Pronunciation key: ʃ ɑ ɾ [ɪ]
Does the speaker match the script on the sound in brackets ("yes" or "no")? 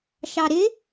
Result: yes